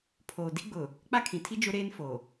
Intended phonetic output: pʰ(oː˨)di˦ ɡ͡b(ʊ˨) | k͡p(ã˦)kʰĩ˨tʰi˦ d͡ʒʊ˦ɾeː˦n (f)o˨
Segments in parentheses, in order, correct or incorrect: correct, correct, incorrect, correct

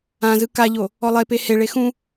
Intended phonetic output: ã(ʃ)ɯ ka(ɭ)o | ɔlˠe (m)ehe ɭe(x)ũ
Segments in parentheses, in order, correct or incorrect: incorrect, incorrect, incorrect, correct

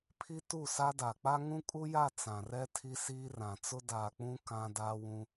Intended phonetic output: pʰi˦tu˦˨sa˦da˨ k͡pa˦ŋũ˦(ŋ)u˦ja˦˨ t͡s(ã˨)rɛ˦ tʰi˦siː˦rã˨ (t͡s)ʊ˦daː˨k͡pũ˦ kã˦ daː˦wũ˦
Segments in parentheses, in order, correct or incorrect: incorrect, correct, correct

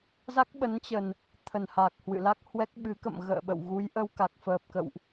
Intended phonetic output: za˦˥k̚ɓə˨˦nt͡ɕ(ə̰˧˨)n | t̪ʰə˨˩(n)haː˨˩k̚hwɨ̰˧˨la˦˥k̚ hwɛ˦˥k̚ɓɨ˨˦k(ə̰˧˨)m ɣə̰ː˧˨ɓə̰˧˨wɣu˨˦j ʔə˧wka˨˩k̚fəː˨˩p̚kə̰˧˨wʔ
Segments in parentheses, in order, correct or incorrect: incorrect, correct, correct

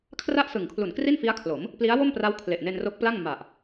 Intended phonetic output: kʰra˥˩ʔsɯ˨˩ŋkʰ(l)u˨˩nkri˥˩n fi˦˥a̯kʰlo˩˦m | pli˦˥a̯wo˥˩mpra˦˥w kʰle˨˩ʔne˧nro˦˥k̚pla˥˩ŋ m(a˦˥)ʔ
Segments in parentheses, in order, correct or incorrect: correct, incorrect

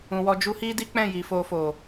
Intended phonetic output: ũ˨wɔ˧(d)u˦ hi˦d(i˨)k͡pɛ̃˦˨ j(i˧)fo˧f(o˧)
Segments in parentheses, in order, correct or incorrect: incorrect, incorrect, incorrect, incorrect

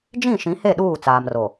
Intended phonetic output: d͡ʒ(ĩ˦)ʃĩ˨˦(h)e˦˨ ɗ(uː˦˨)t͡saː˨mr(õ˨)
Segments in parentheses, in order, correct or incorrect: incorrect, correct, correct, incorrect

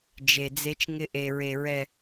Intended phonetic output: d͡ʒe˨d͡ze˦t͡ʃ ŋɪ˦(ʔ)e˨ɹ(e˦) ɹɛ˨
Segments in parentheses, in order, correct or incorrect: correct, incorrect

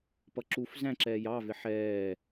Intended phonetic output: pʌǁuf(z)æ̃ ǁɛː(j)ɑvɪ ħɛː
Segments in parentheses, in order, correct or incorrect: correct, correct

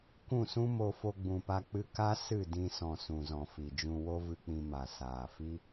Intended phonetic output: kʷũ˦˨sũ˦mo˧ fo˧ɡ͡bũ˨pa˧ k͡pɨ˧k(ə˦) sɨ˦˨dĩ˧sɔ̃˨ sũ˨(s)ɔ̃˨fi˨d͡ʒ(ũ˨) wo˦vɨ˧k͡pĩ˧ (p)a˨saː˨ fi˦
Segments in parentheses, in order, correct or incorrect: incorrect, incorrect, incorrect, incorrect

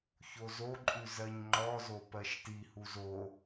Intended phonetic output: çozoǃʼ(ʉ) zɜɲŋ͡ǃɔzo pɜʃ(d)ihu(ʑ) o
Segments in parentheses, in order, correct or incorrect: correct, incorrect, incorrect

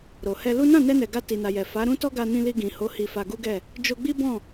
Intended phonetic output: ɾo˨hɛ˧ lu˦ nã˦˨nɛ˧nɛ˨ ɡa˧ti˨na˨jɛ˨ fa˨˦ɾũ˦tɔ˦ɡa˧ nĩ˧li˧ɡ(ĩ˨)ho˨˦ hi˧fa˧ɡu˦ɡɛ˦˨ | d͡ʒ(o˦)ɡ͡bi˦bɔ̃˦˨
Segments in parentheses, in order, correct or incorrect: correct, incorrect

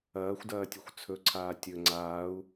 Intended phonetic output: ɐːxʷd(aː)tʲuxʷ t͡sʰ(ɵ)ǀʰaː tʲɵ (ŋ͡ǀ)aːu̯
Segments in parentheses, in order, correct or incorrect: incorrect, correct, correct

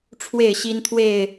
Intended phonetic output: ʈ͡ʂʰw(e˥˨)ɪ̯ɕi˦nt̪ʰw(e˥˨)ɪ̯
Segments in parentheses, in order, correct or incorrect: correct, correct

